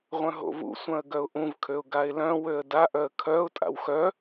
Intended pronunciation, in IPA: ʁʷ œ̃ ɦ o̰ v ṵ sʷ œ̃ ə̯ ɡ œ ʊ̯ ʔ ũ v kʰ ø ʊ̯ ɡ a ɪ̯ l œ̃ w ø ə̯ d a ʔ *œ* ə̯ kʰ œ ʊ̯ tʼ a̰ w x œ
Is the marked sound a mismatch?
no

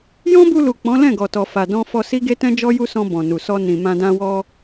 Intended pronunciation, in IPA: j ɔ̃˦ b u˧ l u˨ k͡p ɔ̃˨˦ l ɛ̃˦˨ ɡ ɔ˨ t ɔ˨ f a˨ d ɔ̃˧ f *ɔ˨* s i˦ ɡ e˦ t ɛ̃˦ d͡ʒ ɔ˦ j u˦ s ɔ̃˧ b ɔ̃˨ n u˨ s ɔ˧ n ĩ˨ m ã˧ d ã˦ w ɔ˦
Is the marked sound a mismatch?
yes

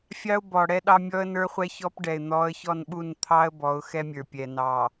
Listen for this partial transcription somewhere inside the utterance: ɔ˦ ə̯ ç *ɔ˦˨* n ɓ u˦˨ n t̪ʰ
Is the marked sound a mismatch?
no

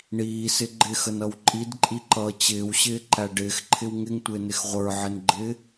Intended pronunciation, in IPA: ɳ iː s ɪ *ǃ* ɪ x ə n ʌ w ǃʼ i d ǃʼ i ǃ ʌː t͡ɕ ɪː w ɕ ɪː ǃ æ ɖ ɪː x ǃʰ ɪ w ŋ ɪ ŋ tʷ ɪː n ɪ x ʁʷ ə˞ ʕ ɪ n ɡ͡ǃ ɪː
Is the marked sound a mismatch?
yes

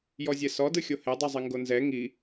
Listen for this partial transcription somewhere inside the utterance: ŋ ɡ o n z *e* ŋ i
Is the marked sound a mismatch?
yes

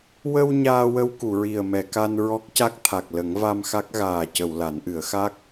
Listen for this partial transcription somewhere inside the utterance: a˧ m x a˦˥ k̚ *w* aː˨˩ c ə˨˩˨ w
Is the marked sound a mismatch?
yes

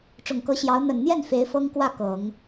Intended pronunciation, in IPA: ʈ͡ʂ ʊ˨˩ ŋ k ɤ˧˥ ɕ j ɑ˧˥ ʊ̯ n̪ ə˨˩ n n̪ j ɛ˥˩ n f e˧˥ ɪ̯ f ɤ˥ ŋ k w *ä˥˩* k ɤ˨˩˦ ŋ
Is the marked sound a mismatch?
no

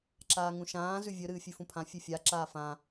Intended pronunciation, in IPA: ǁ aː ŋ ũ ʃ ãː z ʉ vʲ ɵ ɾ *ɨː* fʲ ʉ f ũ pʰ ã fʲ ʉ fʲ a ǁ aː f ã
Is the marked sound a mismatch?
no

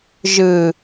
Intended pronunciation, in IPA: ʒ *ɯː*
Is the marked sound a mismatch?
yes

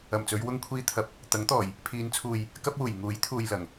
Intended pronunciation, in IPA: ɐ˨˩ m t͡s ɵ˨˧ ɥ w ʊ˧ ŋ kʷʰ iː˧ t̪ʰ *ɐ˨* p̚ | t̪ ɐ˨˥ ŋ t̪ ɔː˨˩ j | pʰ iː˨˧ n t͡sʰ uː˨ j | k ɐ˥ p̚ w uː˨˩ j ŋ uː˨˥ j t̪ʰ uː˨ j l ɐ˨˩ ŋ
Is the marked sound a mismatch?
no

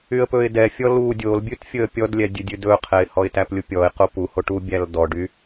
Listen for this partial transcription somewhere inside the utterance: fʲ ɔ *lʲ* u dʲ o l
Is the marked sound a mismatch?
yes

